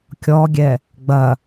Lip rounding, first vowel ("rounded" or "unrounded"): rounded